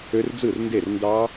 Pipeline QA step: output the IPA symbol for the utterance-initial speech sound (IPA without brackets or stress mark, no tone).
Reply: ø